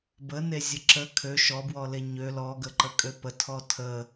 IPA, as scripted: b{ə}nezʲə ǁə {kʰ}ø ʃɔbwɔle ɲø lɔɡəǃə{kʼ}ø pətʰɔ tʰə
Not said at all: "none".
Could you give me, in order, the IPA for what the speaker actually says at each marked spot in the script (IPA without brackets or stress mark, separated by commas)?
ə, kʰ, kʼ